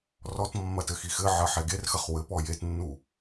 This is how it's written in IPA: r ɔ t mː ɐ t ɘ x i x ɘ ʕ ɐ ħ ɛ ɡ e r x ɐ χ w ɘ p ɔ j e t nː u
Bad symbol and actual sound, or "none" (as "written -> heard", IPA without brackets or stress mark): none